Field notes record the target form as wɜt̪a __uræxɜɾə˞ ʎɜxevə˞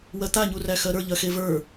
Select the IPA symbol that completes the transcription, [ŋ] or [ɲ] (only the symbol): ɲ